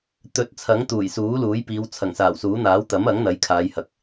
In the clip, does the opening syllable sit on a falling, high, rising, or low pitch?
rising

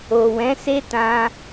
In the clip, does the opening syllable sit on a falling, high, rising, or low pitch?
low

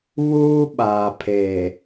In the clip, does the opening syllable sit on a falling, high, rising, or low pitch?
high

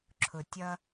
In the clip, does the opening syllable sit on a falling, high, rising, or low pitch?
low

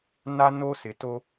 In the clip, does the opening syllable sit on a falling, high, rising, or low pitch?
high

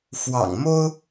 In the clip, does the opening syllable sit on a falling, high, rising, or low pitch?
low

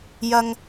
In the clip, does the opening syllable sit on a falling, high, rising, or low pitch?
high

